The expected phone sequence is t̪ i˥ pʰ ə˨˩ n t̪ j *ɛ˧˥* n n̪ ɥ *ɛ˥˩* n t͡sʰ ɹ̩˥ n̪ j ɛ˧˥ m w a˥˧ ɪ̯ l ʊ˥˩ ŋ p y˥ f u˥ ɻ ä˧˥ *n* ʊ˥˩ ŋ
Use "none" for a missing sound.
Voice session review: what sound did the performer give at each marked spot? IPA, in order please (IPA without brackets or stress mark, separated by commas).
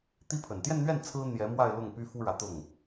ɛ˥˧, ɛ˥˩, t̪